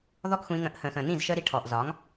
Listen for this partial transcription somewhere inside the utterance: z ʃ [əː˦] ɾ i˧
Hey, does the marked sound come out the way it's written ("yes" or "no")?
yes